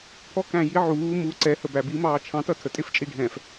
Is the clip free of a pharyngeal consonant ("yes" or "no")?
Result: no